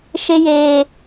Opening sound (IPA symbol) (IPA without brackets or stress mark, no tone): ʃ